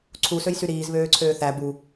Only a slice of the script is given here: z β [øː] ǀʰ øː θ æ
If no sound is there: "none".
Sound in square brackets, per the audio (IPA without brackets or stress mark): øː